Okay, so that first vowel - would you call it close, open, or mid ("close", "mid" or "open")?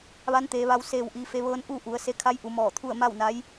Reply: open